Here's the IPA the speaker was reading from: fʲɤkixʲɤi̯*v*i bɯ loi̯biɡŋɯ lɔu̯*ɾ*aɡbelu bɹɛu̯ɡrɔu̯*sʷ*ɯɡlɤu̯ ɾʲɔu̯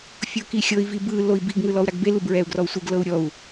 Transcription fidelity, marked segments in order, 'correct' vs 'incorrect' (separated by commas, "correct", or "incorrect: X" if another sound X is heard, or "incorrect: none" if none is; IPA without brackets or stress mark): correct, correct, correct